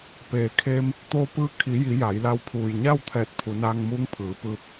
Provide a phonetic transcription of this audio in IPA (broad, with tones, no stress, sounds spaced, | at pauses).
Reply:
p eː˩ kʰ eː˧ m | t̪ oː˧˥ p ɯː˧˥ kʰ i˩˧ j i˩˧ j a˩˧ j l a˧ w pʰ uː˩ j ɲ a˥˨ w t̪ʰ ɛː˧˩ t̚ pʰ u˩˧ n aː˧ ŋ m uː˧˥ ŋ pʰ ɯː˩˧ p ɯː˧ p̚